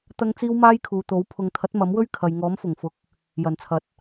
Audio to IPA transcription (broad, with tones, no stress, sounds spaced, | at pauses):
t̪ ɐ˥ ŋ t͡s iː˥ w m aː˥ j kʰ uː˨ t̪ o˨˥ w pʰ ʊ˨ ŋ t̪ʰ ɐ˨˥ t̚ m ɐ˨˥ m w ɵ˥ ɥ kʰ ɐ˨ j ŋ ɔː˨˥ m f ʊ˨˩ ŋ f ʊ˨˥ k̚ | j ɐ˨˩ n t͡sʰ ɐ˨ t̚